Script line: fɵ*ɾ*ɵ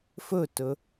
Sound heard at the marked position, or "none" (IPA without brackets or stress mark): t